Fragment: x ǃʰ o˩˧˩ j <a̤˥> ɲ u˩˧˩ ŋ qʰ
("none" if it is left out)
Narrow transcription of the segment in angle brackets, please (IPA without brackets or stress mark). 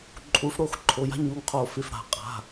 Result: a̤˥